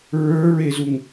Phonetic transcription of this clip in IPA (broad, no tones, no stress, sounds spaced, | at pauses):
ɹ ə˞ ɹ e z u ŋ